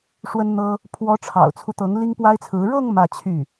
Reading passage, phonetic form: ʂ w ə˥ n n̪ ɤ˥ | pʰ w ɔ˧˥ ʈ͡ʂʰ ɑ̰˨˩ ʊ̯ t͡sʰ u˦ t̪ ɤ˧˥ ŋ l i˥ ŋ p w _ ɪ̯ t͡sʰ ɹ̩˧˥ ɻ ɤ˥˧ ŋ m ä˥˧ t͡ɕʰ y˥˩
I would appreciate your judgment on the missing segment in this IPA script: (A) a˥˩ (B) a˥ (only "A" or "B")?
B